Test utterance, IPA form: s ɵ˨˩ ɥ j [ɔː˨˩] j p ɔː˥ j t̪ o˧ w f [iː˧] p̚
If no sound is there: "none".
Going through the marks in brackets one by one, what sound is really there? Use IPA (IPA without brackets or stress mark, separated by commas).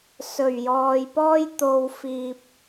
ɔː˨, iː˧